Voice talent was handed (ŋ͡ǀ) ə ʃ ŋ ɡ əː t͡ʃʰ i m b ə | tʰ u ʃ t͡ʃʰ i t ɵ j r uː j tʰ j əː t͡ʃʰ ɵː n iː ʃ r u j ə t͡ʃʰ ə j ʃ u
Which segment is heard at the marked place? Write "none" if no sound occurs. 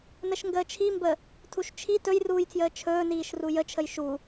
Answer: n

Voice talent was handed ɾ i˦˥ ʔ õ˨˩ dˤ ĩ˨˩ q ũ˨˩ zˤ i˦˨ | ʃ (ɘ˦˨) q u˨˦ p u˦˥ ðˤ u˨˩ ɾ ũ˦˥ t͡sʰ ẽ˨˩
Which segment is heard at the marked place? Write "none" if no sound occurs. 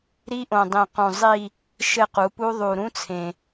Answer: ɘ˦˨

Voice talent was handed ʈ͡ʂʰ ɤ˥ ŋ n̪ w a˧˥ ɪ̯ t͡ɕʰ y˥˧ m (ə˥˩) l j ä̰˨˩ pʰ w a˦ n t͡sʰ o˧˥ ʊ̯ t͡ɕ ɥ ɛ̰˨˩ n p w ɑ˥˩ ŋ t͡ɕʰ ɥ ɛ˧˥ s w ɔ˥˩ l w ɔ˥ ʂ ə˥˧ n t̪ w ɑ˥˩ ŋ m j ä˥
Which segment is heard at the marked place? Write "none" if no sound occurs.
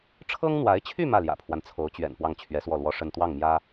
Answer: ä˥˩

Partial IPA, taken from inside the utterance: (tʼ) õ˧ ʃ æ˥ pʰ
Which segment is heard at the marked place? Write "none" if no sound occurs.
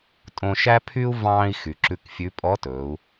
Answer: tʼ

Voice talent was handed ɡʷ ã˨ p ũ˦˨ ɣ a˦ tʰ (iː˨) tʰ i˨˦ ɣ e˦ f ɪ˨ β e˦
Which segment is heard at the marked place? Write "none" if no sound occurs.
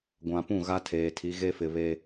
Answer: eː˨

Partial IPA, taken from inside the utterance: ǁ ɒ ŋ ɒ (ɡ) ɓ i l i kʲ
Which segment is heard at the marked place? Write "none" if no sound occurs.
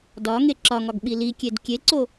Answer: ɡ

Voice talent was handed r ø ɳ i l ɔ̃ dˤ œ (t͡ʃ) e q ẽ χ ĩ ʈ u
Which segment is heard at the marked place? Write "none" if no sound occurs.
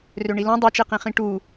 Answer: t͡ʃ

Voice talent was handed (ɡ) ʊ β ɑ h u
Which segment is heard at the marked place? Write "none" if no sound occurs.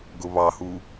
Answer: ɡ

